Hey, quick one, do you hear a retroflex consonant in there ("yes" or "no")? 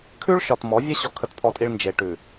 yes